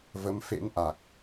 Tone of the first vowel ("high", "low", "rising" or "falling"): rising